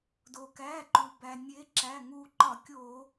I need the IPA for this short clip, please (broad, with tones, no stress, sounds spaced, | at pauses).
d o˩ k æ˩˧˩ ǃ u˩ b æ˩ nʲ e˨˦ ǁ æ˩˧˩ ŋ u˧˩ ǃ ɒ˧˩˧ kʲ o˧˩˧